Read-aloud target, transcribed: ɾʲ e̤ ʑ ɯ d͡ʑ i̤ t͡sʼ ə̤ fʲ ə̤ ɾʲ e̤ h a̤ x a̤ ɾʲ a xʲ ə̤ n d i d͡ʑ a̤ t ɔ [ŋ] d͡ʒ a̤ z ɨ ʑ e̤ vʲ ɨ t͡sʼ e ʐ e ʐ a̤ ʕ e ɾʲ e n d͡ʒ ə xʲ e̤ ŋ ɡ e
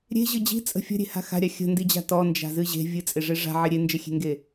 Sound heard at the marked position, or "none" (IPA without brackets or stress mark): n